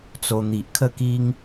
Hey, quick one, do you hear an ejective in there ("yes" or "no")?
no